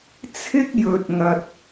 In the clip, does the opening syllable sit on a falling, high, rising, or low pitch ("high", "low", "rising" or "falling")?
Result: high